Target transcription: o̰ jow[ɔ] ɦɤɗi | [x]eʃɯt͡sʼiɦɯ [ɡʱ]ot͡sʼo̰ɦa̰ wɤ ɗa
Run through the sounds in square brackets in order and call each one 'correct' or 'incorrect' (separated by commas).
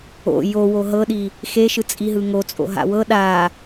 incorrect, correct, incorrect